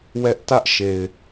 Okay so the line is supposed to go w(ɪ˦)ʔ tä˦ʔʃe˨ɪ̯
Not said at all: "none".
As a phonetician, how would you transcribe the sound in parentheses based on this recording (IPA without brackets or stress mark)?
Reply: ɛ˦